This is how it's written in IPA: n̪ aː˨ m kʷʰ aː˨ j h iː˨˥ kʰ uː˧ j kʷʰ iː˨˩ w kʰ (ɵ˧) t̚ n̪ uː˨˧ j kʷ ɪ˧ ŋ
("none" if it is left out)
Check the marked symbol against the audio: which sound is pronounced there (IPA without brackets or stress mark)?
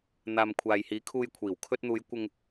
ɵ˧